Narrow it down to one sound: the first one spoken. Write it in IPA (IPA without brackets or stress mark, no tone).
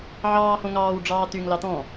ʕ